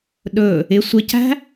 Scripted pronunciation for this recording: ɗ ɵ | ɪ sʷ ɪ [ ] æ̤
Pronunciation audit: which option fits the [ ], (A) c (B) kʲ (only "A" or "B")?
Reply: A